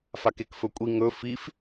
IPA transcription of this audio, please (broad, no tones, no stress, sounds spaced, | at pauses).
f a k e k f ɵ kʷʼ i ŋ ɵ f i f